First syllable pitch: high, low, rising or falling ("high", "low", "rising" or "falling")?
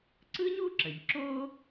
high